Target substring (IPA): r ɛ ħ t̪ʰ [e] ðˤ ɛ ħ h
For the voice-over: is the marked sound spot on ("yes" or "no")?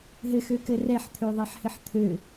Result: no